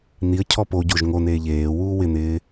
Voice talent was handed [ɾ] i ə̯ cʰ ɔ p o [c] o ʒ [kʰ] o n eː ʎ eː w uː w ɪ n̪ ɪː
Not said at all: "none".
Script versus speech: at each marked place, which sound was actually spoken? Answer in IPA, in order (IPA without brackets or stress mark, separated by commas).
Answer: n̪, ɟ, ŋ